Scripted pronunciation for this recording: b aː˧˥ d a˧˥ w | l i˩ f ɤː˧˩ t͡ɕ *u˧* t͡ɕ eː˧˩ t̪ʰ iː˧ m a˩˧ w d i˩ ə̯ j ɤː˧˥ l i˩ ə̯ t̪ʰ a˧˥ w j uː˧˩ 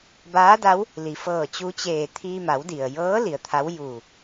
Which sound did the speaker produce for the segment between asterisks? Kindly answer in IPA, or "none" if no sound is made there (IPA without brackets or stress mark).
u˧